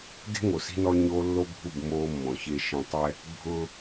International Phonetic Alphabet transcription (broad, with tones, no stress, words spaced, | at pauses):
de̤˦ŋo˨si̤˦nɔ˦ ɲoː˦lːo˦bʱu˦˨b moː˦mːɔ̃˨çe˦ ʃĩ˦tˤ ɛ˦ | bʱʊː˦